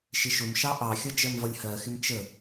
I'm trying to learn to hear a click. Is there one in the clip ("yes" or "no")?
no